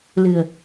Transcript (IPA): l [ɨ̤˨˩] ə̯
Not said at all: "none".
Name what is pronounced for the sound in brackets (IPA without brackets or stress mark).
ɨ̤˨˩